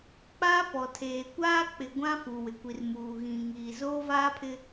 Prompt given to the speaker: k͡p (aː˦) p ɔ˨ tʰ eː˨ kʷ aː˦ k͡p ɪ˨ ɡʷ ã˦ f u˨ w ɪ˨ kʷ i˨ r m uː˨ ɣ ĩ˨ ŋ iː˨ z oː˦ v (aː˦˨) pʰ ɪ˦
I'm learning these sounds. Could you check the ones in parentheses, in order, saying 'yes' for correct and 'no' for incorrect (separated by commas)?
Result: yes, no